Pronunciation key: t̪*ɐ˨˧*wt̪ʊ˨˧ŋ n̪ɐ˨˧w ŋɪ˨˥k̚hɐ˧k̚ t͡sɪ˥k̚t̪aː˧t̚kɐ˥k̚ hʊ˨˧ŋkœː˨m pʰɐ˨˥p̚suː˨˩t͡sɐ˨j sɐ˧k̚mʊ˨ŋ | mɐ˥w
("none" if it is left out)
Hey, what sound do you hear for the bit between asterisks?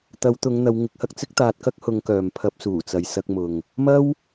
ɐ˨˧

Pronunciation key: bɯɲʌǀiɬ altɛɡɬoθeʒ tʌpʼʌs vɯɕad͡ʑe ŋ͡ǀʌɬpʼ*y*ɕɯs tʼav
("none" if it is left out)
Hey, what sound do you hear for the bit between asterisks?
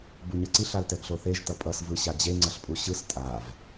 u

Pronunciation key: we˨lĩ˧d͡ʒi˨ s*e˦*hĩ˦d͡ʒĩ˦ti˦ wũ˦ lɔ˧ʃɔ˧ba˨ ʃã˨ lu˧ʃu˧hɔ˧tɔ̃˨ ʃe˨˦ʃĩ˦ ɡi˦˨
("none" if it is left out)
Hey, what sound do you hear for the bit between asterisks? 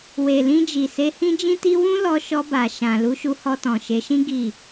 e˧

